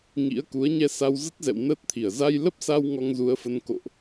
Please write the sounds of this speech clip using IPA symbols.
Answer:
ŋ ḭ˧˥ ə̯ k u˨˦ ə̯ ɲ ɛ˧ s a˧ w z ə˦˥ t̚ z ɛ̰˧˨ w n əː˦˥ t̚ t̪ʰ i˧˩ ə̯ z a˧ j l ə˦˥ p̚ s a˧ w ŋ ɔ˧ ŋ z u˨˦ ə̯ f ə˧ n k o̰˧˨ ʔ

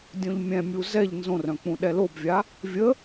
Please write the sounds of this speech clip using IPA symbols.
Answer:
dʲ õ ʎ mʲ ɛ̃ mʲ u z ɛ ʎ n z õ r œ̃ k͡p ũ ɗ ɛ l o b vʲ a | vʲ ə

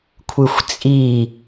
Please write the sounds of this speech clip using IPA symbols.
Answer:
kʷʰ ɯ xʷ t͡sʼ i

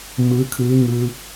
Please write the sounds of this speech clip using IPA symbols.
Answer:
m ɯː˧˥ kʰ ɯː˧˥ ŋ ɯː˧

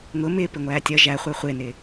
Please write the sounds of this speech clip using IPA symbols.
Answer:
ŋ ʊ m ɪː p ɪ ŋʷ æː tʲ ʌ ʒ æ χʷ ə˞ χʷ ɪː n ɪː

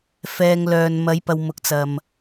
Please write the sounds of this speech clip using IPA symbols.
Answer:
f ɛː˨ ŋ l œː˨ n m ɐ˨˧ j p ɐ˨ w m ʊ˨˥ k̚ t͡s ɐ˨ m

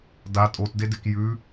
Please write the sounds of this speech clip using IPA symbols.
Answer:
d a tʼ o t d e d e k j ʉ

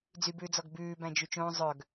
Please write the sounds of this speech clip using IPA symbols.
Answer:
d͡z y b ʉː d͡z ɔ ɡ b ʉː b æ̃ d͡ʒ y t͡ʃ õː zˤ œ ɡ

